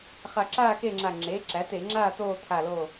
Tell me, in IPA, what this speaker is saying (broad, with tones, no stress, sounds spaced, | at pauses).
χ a˧˩ ǁ aː˥˨ k e˥˨ ŋ͡ǁ a˧˩ ŋ͡ǁ eː˩˥ ǁ æ˩˥ t̪ e˧˩˧ ŋ͡ǁ aː˥˨ t̪ oː˥˨ t̪ʰ a˧˩ l o˥˨